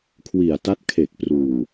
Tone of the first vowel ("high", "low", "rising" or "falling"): low